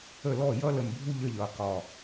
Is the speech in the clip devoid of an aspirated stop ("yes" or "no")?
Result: yes